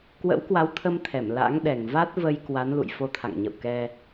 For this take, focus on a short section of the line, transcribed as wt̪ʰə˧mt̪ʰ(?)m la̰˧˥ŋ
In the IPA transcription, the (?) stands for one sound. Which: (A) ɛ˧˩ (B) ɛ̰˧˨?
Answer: A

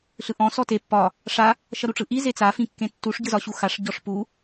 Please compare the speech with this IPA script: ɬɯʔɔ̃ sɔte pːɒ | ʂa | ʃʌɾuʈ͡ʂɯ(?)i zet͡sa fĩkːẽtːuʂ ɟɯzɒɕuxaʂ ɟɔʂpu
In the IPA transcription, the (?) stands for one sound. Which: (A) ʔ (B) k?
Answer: A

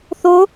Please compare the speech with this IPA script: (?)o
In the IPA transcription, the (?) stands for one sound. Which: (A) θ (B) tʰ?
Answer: A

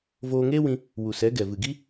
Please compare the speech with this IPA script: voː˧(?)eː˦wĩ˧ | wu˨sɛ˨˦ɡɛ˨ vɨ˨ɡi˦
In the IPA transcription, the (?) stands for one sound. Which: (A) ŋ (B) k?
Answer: A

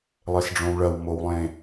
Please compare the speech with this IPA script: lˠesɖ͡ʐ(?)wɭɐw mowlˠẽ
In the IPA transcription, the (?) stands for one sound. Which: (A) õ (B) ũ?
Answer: A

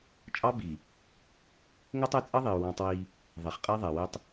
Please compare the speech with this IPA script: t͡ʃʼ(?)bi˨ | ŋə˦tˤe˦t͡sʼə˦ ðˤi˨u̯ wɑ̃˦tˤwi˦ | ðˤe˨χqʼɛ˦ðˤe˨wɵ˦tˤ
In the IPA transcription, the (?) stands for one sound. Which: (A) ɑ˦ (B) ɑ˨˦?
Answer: A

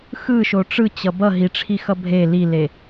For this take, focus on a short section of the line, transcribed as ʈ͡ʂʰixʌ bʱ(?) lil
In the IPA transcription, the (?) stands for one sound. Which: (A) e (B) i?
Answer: A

